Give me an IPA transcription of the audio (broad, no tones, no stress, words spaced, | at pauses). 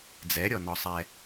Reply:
d͡zɛɾʲɔnɔsˤɛ